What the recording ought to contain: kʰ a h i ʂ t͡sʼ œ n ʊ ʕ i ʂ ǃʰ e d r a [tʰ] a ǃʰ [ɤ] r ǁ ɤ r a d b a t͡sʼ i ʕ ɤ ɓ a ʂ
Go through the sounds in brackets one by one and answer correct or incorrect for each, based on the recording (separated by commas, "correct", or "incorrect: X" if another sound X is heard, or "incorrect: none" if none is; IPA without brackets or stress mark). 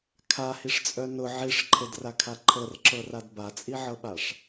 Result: incorrect: kʰ, correct